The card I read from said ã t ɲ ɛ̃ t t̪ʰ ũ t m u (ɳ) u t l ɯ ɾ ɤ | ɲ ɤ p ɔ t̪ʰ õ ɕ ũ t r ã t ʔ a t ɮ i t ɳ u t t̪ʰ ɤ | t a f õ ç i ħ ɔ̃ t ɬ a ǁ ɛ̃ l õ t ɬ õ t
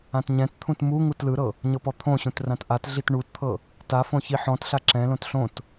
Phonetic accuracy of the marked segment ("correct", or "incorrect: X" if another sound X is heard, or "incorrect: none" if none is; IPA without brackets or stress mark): incorrect: ŋ